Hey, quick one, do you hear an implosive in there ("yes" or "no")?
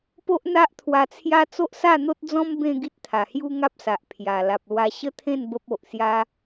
no